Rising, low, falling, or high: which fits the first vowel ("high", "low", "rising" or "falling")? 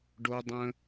low